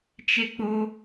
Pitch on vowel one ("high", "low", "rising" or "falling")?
high